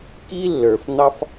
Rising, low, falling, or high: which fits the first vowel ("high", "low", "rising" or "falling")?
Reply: high